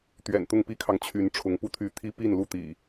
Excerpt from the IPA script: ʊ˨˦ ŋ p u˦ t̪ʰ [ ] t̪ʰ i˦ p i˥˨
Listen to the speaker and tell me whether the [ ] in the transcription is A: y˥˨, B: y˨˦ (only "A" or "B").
B